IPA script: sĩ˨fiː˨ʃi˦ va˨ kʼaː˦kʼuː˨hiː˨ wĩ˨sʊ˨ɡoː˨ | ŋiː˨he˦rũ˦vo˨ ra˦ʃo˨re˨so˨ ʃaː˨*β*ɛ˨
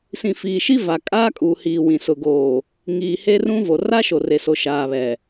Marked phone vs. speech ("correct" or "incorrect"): correct